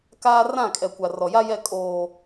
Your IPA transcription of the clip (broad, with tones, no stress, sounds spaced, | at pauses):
k aː˦ r ã˦˨ kʼ ɛ˨ kʷ a˨ r ɔ˨ j a˦ j ɛ˦˨ kʼ oː˨